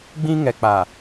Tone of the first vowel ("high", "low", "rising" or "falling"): high